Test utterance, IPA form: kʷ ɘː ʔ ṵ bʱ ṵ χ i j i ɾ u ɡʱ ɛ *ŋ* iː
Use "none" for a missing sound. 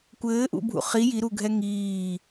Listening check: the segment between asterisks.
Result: ŋ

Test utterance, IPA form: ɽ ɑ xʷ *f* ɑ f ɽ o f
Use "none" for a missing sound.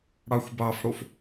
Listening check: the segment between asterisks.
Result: b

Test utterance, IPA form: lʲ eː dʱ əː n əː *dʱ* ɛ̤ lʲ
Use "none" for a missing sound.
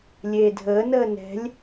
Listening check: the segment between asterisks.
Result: n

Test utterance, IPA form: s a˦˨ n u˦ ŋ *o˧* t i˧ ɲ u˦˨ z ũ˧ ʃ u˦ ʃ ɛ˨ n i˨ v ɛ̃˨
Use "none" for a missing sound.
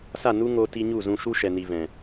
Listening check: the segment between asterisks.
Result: o˧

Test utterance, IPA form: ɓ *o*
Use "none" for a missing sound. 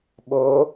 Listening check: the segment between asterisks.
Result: o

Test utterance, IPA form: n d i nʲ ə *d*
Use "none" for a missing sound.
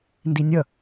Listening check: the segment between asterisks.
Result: none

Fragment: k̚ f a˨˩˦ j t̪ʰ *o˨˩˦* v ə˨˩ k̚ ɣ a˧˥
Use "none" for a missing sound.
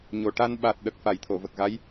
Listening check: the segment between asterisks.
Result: o˨˩˨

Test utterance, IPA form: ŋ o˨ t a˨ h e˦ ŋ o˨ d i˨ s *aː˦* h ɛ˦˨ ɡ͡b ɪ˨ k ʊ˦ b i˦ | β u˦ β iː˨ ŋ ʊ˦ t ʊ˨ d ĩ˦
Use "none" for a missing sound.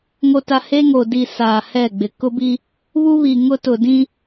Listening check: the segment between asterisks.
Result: aː˨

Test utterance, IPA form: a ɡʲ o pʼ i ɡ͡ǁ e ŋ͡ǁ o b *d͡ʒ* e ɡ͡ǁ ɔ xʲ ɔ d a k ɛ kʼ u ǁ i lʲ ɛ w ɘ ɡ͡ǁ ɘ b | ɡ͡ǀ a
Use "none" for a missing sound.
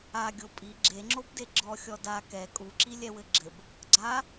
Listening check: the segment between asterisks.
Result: d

